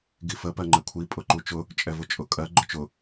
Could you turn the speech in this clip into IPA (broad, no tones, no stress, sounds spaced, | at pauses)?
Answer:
ɡ i f ə p ɜ ŋ͡ǃ ɛ kʷʰ i pʼ ʊ ǃ u t͡ʃ ʊ | t͡ʃʼ ɛ v ʊ t͡ʃʼ ʊ kʼ ɜ ɡ͡ǃ ʊ t͡ʃ ʊ